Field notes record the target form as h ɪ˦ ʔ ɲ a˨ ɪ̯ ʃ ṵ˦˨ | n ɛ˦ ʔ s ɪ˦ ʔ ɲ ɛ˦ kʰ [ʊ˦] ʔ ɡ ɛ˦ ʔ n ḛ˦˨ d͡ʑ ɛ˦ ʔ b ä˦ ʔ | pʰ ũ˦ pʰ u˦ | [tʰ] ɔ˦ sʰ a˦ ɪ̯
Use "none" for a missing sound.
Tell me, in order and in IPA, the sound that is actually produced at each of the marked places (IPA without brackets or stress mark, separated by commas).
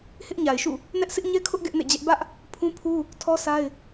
ʊ˦, tʰ